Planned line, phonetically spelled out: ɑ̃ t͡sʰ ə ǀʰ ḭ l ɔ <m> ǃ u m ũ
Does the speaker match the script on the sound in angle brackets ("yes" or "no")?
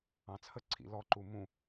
no